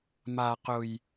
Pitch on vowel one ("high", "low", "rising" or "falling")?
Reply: low